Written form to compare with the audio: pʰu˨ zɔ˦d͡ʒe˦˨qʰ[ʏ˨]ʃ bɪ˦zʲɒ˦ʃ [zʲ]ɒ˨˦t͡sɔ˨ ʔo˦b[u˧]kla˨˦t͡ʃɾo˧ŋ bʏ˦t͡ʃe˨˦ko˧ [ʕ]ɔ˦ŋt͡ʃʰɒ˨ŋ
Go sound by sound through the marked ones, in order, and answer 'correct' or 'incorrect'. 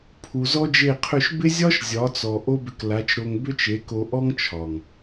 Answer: incorrect, correct, incorrect, incorrect

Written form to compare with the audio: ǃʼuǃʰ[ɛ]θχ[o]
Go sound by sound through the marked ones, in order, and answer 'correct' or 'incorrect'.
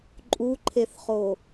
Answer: incorrect, correct

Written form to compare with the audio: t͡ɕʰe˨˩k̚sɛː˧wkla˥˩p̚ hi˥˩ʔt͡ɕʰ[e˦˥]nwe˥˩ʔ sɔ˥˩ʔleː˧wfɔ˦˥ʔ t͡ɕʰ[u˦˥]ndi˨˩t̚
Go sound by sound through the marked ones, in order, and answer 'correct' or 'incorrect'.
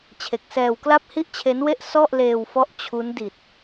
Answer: correct, correct

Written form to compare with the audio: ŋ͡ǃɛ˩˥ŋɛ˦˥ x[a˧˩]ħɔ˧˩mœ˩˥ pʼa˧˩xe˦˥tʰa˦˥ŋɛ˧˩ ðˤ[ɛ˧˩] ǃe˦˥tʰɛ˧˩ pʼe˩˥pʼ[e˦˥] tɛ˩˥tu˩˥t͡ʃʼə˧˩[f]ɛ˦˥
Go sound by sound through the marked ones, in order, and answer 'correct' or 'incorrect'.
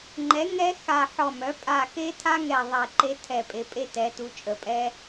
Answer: correct, correct, correct, incorrect

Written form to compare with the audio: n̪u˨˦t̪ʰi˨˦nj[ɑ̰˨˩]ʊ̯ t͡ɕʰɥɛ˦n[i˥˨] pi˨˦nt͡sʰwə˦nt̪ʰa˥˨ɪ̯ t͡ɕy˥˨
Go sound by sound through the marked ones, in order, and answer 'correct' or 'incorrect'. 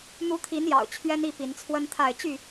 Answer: correct, correct

